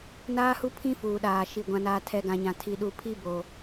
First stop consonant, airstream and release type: aspirated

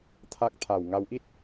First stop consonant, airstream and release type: aspirated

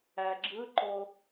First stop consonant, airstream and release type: click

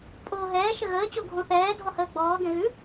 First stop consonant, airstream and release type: ejective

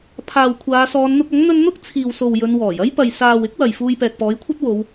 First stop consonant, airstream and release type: aspirated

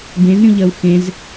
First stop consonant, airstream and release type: plain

